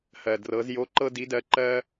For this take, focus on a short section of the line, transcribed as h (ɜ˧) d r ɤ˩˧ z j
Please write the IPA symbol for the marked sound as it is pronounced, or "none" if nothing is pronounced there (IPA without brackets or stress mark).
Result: ɜ˩